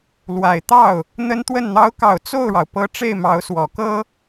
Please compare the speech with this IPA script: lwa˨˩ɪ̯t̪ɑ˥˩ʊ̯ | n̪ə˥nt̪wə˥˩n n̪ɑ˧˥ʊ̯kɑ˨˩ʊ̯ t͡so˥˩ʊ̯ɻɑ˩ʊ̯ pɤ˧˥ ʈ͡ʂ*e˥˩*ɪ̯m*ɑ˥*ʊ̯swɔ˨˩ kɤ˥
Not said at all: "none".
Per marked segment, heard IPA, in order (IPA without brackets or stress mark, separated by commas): e˥˩, ɑ˧˥